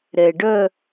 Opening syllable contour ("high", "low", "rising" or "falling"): low